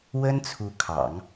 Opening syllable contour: high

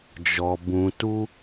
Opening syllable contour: low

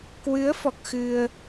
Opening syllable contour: rising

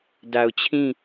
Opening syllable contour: low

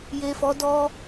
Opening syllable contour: low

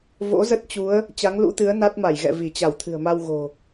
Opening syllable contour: rising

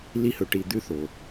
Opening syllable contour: high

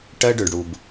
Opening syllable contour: high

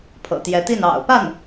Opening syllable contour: low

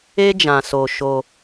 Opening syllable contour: high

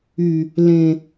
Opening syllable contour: low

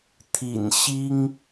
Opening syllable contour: low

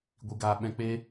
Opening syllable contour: low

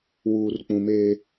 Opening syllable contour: low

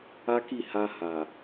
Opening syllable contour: high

